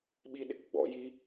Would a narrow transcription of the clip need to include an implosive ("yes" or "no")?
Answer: yes